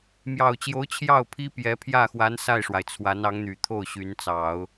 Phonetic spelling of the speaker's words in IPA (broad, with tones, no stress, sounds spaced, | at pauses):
m j ɑ˨˩ ʊ̯ t͡ɕ j o˧˥ ʊ̯ t͡ɕʰ j ɑ˥˩ ʊ̯ pʰ i˥ p j ɛ˧˥ pʰ j ä˥˩ x w a˧˥ n s a˥˩ ɪ̯ ʂ w a˩ ɪ̯ t͡sʰ w a˧˥ n ɑ˧˥ ŋ n̪ y˨˩ t̪ʰ o˥˩ ʊ̯ ɕ y˧˥ n t͡s ɑ˨˩˦ ʊ̯